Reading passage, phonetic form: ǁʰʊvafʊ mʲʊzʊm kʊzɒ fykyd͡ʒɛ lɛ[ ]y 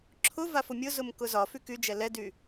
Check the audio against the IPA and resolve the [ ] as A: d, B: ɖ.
A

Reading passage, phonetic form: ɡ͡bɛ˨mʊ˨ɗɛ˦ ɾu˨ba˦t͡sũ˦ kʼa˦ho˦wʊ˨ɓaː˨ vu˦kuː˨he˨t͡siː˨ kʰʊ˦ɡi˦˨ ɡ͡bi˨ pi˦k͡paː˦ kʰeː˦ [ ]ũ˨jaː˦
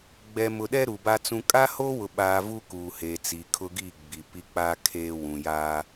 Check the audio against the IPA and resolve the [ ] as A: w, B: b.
A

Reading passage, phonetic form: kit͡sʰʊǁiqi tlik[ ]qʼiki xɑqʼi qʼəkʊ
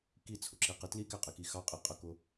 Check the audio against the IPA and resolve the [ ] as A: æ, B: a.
A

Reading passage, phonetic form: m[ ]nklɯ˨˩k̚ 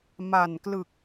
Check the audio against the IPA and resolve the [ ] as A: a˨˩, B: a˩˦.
A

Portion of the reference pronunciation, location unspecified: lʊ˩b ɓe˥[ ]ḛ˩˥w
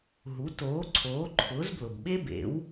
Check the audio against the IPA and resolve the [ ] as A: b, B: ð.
A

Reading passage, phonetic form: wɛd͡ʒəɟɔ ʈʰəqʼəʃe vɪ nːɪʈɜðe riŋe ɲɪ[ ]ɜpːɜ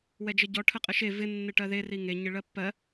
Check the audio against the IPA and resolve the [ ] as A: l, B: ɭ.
B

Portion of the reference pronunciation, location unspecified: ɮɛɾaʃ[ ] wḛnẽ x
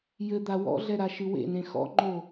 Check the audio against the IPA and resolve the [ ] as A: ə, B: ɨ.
B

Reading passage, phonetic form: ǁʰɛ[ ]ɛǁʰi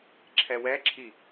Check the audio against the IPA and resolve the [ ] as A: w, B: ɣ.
A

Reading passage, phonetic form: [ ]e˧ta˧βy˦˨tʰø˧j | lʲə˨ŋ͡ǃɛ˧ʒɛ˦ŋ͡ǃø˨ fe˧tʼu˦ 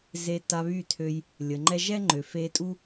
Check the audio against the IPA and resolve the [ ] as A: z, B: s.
A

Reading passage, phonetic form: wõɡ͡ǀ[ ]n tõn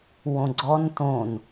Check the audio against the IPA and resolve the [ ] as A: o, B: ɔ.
B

